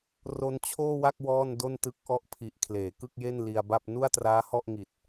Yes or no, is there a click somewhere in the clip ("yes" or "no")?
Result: no